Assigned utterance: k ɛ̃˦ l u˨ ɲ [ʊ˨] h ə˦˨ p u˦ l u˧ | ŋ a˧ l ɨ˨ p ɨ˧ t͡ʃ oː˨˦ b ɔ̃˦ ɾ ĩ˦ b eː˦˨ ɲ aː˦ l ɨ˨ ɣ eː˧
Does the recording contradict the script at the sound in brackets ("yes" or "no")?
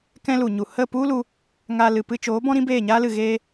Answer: yes